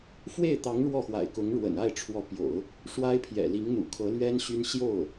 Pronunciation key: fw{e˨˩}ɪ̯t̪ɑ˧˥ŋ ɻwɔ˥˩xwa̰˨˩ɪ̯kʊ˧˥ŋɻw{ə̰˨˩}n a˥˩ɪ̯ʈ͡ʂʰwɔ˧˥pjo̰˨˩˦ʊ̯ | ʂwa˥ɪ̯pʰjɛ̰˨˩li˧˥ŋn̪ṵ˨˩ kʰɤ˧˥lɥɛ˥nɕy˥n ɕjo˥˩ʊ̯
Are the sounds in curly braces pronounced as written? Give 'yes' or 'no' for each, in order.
no, yes

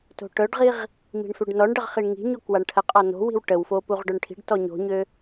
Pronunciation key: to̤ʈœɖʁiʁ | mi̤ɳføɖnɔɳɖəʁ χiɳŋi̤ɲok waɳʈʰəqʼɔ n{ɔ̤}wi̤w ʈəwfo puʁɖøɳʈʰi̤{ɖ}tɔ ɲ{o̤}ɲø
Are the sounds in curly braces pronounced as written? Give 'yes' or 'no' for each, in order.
no, yes, yes

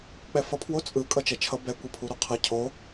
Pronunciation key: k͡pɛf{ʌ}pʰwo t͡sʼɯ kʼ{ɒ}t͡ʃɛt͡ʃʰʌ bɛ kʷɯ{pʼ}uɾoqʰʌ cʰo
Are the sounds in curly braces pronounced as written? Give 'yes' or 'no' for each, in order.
yes, no, no

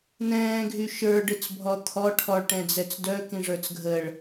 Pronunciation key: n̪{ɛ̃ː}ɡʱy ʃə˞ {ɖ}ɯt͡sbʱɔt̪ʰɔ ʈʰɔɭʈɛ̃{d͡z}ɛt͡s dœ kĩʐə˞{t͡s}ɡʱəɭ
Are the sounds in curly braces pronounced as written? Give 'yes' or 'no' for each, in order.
yes, yes, yes, yes

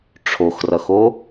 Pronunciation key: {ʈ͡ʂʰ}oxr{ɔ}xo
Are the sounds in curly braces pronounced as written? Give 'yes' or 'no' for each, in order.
yes, no

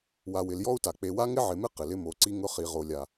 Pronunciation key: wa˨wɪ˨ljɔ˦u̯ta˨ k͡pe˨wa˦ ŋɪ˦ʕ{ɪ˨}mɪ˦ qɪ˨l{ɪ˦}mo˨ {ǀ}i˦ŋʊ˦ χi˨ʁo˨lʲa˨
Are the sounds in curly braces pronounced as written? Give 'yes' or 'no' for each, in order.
yes, yes, yes

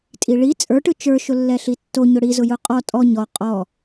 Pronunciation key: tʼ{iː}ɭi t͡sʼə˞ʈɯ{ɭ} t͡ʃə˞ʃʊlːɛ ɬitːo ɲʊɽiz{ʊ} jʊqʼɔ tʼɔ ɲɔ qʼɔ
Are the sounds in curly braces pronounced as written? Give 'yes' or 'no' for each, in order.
no, no, yes

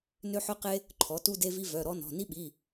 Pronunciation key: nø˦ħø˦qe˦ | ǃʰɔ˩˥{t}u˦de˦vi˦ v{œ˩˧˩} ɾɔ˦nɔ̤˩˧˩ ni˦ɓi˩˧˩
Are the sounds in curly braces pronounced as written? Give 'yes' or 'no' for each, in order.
yes, yes

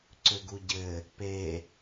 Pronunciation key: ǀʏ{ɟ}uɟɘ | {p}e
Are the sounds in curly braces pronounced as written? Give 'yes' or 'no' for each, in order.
no, yes

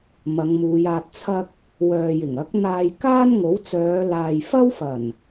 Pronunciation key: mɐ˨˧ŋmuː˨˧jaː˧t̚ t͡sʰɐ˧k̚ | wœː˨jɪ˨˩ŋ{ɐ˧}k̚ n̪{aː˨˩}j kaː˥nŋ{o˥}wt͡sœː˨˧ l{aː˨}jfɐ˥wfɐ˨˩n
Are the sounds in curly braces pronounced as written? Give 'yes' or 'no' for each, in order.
no, no, no, yes

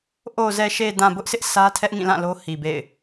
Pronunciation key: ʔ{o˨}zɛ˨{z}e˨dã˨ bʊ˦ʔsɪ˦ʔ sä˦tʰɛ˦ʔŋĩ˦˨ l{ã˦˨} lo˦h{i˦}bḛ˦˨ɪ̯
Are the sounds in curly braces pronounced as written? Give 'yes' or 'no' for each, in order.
yes, no, yes, no

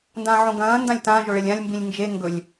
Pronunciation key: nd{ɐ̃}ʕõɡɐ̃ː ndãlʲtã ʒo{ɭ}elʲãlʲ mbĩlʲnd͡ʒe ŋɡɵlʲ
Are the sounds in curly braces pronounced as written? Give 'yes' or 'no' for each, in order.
no, yes

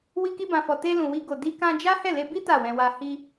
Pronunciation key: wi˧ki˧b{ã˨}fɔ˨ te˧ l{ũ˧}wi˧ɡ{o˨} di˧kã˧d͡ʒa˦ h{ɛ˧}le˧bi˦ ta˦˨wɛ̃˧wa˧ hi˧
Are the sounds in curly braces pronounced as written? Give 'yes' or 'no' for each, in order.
yes, no, yes, no

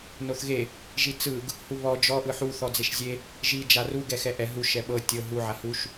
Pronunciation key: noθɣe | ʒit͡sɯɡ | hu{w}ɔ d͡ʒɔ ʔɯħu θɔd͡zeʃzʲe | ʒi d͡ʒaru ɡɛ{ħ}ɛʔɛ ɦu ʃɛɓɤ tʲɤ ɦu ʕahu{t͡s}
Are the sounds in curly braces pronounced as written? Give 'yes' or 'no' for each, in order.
no, no, no

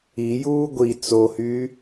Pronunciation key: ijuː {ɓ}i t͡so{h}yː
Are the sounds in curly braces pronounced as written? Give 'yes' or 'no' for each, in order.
no, yes

